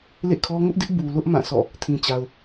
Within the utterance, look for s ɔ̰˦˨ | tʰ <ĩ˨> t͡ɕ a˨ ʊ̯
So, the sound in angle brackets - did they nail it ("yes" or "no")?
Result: yes